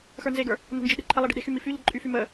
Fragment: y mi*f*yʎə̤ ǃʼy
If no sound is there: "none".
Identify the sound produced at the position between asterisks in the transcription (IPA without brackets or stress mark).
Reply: f